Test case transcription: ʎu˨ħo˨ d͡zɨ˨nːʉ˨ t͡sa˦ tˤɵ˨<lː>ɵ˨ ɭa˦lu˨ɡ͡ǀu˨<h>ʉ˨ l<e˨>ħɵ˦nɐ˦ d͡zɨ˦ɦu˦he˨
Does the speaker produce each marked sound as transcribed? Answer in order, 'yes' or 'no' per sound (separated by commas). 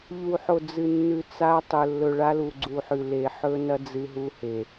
yes, no, yes